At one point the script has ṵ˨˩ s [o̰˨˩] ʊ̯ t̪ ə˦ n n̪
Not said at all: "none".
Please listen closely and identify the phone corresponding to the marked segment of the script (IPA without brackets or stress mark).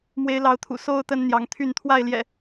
o˦